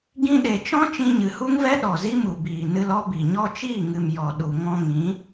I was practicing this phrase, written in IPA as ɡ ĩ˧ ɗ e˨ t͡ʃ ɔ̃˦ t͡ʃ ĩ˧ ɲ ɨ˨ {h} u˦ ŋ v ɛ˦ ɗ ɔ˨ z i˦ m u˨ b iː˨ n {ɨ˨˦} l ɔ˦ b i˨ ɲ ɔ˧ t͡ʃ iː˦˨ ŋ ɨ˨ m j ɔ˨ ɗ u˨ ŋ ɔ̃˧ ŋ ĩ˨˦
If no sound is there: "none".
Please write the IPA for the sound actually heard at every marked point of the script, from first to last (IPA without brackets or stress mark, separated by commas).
h, ɨ˧